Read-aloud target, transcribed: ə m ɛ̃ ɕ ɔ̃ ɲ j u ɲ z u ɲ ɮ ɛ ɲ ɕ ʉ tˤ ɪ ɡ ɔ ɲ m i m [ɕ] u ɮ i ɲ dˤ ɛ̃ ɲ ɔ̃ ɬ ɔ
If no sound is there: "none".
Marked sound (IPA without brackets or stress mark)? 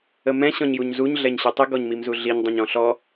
z